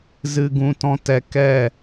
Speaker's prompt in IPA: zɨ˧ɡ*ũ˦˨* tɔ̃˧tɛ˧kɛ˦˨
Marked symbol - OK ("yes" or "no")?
no